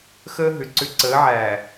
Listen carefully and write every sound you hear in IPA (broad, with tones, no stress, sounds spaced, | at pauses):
x əː˦ ɦ ʏ˨ ǀ ʏ˦ ǀ əː˨˦ ʕ æː˨